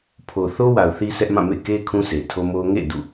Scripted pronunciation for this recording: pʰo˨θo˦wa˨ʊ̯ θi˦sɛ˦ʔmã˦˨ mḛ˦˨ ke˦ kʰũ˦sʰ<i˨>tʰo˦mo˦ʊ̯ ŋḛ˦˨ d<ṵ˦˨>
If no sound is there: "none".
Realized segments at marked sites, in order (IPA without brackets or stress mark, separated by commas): e˨, ṵ˦˨